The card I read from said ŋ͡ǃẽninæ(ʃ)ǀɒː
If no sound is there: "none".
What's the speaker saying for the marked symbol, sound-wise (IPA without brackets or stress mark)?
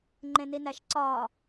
ʃ